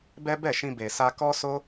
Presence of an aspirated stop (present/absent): absent